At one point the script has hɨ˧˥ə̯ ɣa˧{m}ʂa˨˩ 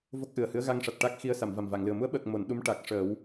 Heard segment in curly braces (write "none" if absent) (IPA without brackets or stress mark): ŋ